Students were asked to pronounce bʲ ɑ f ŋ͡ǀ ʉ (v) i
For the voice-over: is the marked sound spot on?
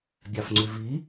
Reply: yes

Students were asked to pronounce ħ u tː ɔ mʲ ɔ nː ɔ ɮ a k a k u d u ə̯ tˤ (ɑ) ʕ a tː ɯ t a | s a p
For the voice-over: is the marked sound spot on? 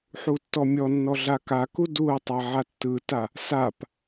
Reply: no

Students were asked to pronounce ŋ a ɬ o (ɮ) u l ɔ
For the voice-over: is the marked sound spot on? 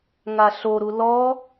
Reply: no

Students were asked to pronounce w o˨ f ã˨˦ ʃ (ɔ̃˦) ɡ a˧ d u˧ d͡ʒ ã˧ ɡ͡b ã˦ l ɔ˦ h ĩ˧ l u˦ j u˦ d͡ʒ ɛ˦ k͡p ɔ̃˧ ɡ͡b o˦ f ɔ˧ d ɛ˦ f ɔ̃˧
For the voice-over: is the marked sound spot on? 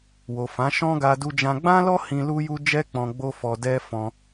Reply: yes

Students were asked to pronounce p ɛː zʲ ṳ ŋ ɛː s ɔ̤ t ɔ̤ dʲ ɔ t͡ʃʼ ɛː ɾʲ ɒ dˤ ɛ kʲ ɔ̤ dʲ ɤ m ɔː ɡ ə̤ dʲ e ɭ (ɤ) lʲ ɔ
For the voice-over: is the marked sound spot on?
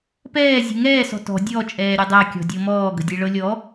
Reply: yes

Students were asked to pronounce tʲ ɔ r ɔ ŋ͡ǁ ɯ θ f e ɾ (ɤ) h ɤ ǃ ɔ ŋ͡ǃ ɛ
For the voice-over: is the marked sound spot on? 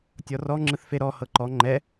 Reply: no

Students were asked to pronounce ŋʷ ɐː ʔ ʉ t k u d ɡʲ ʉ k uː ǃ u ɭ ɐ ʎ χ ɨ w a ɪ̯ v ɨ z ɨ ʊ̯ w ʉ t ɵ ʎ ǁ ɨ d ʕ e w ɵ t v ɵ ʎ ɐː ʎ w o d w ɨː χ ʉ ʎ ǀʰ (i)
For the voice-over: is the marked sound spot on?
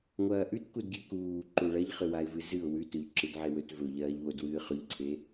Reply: no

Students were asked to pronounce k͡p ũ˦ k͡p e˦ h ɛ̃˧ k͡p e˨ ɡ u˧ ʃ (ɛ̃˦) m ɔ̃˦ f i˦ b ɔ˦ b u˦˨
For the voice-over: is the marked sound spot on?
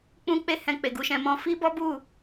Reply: no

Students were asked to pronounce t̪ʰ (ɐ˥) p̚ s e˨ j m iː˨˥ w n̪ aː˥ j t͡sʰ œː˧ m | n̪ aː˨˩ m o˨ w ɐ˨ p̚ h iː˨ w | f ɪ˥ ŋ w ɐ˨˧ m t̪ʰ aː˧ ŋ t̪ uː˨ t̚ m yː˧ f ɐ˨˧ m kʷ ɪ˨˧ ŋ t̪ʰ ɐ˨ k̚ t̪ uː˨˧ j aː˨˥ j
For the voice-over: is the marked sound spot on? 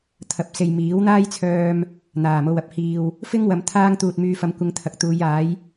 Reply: no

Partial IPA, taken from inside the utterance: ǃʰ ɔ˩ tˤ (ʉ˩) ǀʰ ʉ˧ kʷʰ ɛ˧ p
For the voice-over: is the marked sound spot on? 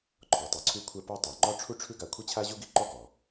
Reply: no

